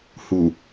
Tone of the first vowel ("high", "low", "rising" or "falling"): low